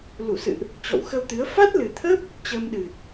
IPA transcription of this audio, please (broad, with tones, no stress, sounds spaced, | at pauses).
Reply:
l u˧˩ s ɨ̰˧˨ ʔ | t͡ɕ ɔ̰˧˨ w x ə˧ w t̪ ɨ˨˦ ə̯ f a˦˥ t̚ l ɨ˨˩ t̪ʰ ə˦˥ p̚ | t͡ɕ əː˧ m ɗ ɨ˨˩ t̚